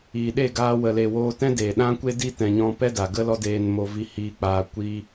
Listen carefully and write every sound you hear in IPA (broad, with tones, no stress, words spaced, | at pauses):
iː˨ɗe˦˨ɡaː˧ wə˨le˨ woː˧tɛ̃˦deː˨ ɗã˦kʷe˦di˦ tɛ̃˧ɲɔ̃˦ pɛ˦da˨ɡə˦ lɔ˦deː˧nmo˧ vi˧hiː˧k͡paː˧ kʷiː˦